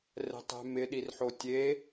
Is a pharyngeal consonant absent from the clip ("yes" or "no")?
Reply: no